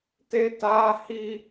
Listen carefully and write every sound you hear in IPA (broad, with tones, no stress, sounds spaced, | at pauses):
t e˦ t aː˦ h i˦